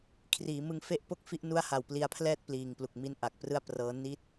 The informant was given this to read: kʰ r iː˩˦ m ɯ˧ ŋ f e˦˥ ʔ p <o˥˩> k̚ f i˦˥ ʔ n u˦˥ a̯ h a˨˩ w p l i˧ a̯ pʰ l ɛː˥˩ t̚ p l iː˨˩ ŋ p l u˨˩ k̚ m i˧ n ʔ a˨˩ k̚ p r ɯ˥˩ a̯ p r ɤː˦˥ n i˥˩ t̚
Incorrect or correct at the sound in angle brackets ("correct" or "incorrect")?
correct